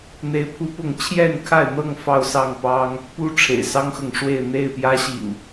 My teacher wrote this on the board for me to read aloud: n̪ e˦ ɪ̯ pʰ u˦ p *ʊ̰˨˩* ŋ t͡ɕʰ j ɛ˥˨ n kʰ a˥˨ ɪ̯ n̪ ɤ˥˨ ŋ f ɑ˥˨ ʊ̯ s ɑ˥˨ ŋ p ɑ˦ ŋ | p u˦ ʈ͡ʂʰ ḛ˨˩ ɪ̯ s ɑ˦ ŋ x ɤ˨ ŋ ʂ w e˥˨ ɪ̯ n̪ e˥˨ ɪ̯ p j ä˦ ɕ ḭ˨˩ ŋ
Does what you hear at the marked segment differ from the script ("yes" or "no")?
yes